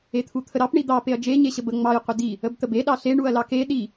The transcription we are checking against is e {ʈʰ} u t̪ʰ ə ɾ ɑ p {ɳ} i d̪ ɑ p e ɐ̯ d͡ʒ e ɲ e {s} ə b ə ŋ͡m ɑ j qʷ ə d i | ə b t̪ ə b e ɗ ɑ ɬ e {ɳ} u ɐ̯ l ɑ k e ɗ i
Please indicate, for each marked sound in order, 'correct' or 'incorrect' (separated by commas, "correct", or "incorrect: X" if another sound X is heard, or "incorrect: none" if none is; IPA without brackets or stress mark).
incorrect: t̪ʰ, correct, incorrect: ɕ, correct